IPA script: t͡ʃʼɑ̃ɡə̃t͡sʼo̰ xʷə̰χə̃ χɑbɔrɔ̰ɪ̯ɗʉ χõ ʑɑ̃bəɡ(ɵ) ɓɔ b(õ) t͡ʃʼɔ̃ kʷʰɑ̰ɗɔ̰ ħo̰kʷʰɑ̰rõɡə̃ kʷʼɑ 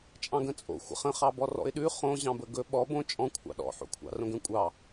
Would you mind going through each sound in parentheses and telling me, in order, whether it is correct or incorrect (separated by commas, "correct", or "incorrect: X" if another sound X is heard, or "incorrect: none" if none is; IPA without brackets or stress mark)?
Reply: correct, correct